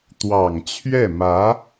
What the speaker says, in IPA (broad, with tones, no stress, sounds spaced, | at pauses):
t̪ w ɑ˨˩ ŋ t͡ɕʰ ɥ ɛ˥˩ m ä˧˥